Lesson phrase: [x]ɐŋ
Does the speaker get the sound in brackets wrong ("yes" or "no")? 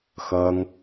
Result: no